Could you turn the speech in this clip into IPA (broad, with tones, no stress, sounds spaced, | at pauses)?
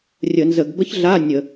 rʲ ə˧˩˧ n z ə˧˩˧ ɡ b ə˥ ç ɮ a˧˥˧ nʲ ə˧˩˧